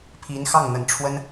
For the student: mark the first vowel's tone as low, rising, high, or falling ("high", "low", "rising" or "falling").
rising